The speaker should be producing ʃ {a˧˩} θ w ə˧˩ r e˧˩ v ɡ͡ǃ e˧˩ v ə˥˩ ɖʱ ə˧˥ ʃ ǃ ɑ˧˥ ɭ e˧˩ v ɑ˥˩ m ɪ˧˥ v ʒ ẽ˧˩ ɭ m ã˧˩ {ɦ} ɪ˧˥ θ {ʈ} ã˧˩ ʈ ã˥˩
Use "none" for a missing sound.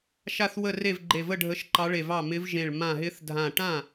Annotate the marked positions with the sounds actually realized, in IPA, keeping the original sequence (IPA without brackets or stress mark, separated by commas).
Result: a˧˩, ɦ, dʱ